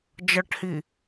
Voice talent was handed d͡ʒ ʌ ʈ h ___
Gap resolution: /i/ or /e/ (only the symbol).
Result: i